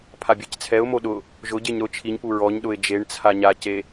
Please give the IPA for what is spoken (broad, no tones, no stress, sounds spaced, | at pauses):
pʰ a bʲ e c t͡sʰ ɛ ʊ̯ m o ɗ ʊ | ʒ ʊ ɟ e ɲ ɾ ʊ t͡ʃʰ i ɲ p u ɹ ɔ ɲ ɗ ʊ ɪ̯ d͡ʒ e ɳ t͡sʰ a ɲ a c e